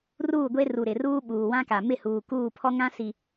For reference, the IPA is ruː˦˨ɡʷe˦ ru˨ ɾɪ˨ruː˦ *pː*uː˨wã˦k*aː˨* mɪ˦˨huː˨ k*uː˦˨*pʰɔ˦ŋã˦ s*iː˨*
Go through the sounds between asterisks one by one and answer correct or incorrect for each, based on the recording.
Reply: incorrect: ɓ, incorrect: a˨, correct, incorrect: i˨

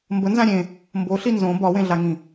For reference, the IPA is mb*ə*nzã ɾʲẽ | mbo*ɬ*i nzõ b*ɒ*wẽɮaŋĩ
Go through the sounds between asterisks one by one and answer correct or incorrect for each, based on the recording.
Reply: correct, correct, correct

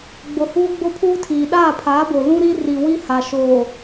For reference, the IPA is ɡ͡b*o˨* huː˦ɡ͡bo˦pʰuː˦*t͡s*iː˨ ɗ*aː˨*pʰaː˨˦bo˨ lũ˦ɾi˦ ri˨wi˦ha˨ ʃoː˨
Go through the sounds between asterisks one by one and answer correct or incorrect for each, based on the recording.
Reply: correct, incorrect: tʰ, incorrect: aː˦˨

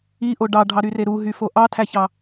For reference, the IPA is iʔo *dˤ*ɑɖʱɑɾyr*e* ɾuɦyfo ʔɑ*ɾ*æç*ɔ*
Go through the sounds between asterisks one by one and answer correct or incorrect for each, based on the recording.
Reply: incorrect: ɖ, correct, incorrect: tʰ, incorrect: ɑ

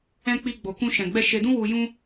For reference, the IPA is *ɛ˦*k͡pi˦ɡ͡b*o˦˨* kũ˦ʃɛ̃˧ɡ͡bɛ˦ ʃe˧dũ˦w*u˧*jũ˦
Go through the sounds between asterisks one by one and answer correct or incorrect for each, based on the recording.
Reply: incorrect: ɛ̃˦, incorrect: o˧, correct

